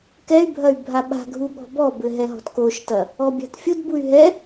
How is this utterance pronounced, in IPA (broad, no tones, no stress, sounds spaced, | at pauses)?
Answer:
k ɛ y̯ bʱ ɐ y̯ bʱ a ɓ a̤ ɡʱ u ɠ ɔ̤ b ɔ b ɘ ɦ ɛ ɦ ɔ̤ t k o ʃ t ɐ | ɔ bʲ a̤ t fʲ o d b u y̯ ɦ ɛ